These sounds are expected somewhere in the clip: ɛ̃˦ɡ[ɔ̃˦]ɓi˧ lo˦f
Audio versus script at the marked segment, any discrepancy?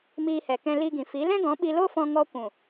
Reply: yes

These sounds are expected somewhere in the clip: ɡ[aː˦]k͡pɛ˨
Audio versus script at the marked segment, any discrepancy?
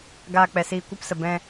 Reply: yes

